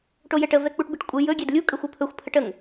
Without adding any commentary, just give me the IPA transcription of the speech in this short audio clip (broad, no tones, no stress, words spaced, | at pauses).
ʈojɛʈə vɛk͡puʈbiʈkʷʼɨ jɵ ɡʲɛdlʲu kʼəxʷopʰɵxʷ pʰəʈəŋ